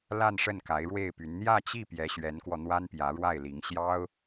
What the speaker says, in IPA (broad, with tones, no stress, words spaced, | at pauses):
la˥˧nʂə˥˩n ka˧˥ɪ̯ɻwe˥˩ɪ̯py˧˥n n̪jä˥˧t͡ɕi˥˩ pjɛ˧˥ɕɥɛ˧˥nkwɔ˧ n̪wa˥npjä˧˥ɻwa˥˩ɪ̯li˧˥ŋ ɕjɑ˥ʊ̯